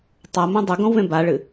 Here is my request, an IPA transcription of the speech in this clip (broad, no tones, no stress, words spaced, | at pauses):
tˤamõ dˤɵɡõwvẽ baɭɨ